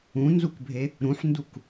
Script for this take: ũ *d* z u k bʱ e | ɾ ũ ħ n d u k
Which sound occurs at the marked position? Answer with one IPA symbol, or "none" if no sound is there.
n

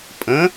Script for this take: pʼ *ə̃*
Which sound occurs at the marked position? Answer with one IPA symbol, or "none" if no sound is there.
ə̃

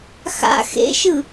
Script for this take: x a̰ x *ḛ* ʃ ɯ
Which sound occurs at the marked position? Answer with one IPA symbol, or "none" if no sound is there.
ḛ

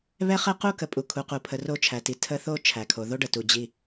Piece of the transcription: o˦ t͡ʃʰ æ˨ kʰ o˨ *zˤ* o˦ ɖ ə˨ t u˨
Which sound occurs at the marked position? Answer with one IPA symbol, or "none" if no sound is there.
ð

